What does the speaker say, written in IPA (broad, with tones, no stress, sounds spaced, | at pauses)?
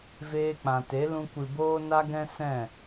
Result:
v eː˧ k͡p ã˨ t e˨˦ l ũ˧ kʷ ɨ˨ b oː˦ n a˦ ɡ ɛ̃˦ s ɛ̃˦˨